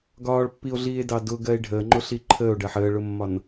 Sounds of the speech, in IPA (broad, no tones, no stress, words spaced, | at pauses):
ɡɒːɭpːio̯ɮiːe̯dɑ dʊɡɜe̯ ɖʱəːŋ͡ǃʊɬi ǃʰəːo̯ɖɜħ əːɭʊmːɒn